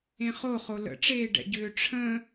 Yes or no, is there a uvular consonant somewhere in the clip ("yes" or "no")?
yes